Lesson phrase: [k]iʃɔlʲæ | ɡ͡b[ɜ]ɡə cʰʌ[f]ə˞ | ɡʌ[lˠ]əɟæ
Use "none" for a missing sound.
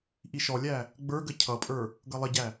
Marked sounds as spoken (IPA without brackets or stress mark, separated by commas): ʔ, ə˞, pʼ, lˠ